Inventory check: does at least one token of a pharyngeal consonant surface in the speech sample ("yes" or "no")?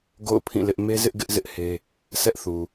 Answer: no